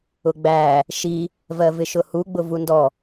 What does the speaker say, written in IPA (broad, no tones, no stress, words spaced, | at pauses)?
ʊɡ͡bæ | ʃi | vɜvɪʃʊhu ɡ͡bʊvundɔ